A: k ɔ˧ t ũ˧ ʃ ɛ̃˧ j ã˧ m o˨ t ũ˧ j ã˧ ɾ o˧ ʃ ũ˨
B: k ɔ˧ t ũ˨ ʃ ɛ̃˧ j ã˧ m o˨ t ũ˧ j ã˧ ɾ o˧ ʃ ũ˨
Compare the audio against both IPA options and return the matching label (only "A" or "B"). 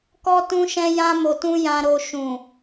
A